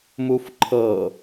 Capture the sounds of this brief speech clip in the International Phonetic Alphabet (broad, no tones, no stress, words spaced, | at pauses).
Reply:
mufǃʰɤ